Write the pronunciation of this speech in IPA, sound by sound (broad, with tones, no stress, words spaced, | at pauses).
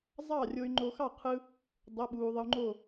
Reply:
zˤɑ˥˨rʲo˧y̯ ŋ͡ǃo˧xɑ˥˨ qʰɯ˧ | dˤo˧˥˧ɓuː˧ ðˤɯ˧u̯ŋ͡ǃo˥˨